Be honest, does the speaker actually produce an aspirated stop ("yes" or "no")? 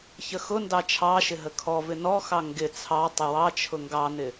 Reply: yes